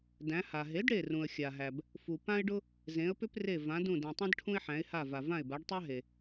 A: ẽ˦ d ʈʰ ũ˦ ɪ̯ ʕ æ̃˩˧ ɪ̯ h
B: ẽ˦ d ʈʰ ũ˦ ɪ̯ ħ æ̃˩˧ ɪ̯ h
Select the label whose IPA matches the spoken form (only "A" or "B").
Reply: B